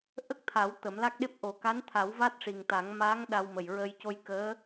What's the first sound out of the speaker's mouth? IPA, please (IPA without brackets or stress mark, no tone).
ʔ